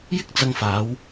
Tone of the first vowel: high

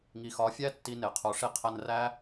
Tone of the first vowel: low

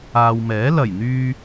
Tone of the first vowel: low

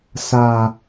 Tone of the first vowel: low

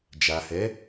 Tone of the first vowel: low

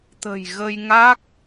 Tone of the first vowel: low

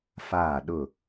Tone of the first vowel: falling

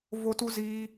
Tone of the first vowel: high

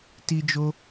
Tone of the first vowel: high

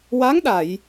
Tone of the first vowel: rising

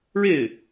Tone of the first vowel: falling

